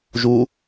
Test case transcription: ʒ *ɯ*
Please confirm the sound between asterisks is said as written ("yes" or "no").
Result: no